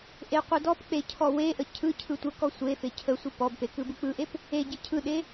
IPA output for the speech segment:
ʔ e qʷ ɯ d ɔ p k͡p e cʰ ɔ w e ʔ ə cʰ ɯ cʰ ɯ tʷ ə k ɔ sʷ e f e cʰ ə sʷ ɯ p ɔ b p e k ɯ b ɯ k͡p ɯ ʔ e p | e ɟ e cʰ ɯ ɗ e

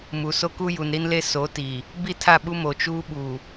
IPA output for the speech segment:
m u˨ s o˦ k u˦ j u˨ n ɾ i˦ n l e˦ s o˨˦ t i˨ | b i˦˨ tʰ a˦˨ ɓ u˦ m o˨ t͡ʃ uː˦ ɓ u˨

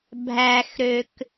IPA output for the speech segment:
bʱ æ x ɾ ø k

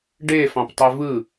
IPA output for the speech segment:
ɖ e f ɑ̃ p tˤ e v ɯ

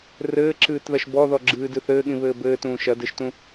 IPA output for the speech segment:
r ɘː ǁ ɨː t ð ɐ ʃ b ɔ ð ɔ ɡ͡ǁ ɨː d ɨ θ ɘː ɠ ĩ β ɘː b ɘː t ũː ʃ ɐ d ɘ ʃ t ũ

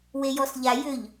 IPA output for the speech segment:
w e j ɔ s ʎ a j ʏ ʎ

